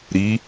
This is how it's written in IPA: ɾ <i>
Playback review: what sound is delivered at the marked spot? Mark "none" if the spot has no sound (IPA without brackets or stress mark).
i